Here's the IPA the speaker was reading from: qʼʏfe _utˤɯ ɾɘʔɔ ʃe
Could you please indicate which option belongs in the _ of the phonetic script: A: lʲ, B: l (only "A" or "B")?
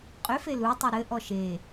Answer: B